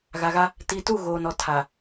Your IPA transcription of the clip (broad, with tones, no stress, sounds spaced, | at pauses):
ɣ a˨ ɣ a˦ | t i˨ t u˦˨ ɣ oː˨ n ɔ˨ tʰ a˨